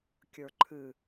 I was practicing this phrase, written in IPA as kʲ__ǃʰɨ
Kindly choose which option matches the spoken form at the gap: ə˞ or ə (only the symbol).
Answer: ə˞